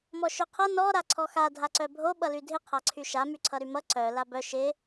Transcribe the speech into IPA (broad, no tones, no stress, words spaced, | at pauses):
mɔʃœqʰʌ nɔ ɾaǀʰɔxa dʱaǀœbʱo ɓʌlydʱɪ qʰaǀʰyʃa myǀʰʌɾymʌ ǀœ labœ ʃɪ